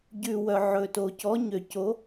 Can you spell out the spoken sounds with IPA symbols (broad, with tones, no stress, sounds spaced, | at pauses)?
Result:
ɟ ʉ˨ w œ˨ ʕ ɵ˨ t o˨ c ɔ˨˥ ɲ ø˨ c o˨˥